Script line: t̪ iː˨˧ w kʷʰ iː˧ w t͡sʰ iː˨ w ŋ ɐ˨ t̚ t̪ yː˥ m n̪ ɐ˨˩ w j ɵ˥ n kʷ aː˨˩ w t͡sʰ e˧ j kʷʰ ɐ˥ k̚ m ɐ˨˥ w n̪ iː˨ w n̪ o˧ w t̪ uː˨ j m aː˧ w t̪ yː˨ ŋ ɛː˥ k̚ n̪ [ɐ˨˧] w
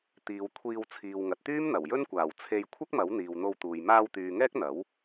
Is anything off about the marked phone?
yes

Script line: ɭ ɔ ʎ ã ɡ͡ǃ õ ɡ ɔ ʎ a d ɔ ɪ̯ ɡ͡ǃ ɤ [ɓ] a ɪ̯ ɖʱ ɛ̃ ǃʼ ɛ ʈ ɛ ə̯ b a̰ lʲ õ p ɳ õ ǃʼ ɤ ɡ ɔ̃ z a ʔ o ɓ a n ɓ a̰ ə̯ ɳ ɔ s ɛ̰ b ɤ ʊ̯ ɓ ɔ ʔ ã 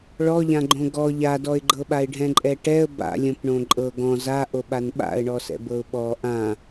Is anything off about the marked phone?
no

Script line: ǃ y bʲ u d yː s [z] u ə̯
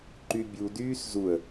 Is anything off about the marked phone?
no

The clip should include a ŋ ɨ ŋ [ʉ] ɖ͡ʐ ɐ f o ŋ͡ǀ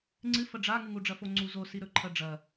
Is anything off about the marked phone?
yes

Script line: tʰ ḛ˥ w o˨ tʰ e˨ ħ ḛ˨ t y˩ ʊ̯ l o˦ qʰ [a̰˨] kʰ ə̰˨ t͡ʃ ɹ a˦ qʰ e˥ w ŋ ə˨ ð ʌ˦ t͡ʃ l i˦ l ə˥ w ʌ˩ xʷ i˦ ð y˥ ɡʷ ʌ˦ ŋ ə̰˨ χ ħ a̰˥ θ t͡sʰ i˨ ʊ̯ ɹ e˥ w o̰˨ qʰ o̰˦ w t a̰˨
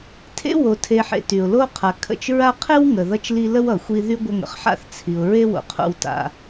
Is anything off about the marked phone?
yes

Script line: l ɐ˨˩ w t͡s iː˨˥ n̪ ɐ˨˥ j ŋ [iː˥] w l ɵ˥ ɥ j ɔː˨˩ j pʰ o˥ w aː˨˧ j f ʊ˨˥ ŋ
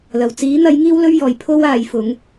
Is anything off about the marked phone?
no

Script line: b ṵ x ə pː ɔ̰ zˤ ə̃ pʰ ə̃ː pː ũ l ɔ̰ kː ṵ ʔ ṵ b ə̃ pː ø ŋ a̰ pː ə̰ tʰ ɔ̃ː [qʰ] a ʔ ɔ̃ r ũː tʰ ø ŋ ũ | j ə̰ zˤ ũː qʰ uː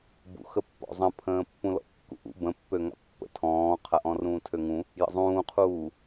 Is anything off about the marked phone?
no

